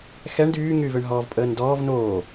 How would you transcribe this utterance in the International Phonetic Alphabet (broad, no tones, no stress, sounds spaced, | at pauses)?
x ɛ ɳ d yː ŋ yː v ʏ ɳ ɦ ɔː v pʼ əː n d ɔː v n oː